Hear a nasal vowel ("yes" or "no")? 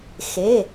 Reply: no